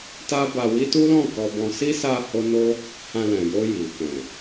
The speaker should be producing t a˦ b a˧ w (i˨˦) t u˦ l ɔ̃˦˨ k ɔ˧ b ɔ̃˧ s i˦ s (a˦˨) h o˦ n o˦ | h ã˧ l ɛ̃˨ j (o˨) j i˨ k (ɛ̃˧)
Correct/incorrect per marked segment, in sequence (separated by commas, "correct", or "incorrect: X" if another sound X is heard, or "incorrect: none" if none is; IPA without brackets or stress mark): incorrect: i˦, incorrect: a˧, incorrect: o˧, incorrect: ɛ̃˨